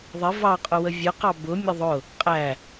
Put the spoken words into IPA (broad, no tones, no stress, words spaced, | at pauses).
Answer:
ðˤɪ vɑqʼʊwə vʲʊqɑ bʊ mʲʊðˤʊ | qʼæ